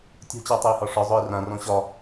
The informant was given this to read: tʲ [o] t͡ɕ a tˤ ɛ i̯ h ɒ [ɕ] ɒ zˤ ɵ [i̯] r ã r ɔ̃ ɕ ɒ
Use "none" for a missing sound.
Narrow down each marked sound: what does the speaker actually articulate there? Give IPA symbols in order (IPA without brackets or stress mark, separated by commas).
o̤, ʂ, i̯